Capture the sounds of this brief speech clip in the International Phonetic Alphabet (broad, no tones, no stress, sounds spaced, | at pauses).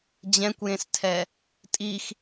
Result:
d͡ʑ ɛ̃ kʷ j ẽ s tʰ ɛ | tʼ i x